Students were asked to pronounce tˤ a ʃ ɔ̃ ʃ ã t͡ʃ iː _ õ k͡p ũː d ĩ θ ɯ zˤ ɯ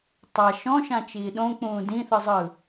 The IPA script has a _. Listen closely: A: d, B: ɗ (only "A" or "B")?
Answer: B